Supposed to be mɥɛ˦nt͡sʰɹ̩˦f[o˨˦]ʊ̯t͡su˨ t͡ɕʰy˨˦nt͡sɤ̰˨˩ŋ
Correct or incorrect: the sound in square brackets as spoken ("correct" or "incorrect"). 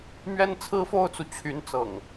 incorrect